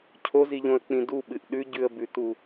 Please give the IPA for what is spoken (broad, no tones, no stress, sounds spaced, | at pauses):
cʰ o z i ʎ õ ə̯ k͡p ĩ d u ɓ ɨ ʔ ɗ ʉ ɟ ʉ ə̯ b ʉ t u